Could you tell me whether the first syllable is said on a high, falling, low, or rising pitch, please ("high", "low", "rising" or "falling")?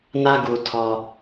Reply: high